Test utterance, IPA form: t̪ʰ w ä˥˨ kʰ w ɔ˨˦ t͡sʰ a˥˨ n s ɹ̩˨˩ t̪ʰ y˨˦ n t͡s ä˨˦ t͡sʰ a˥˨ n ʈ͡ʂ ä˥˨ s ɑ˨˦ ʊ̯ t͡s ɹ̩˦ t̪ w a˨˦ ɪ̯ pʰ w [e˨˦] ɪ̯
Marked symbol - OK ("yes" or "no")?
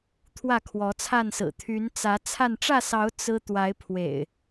no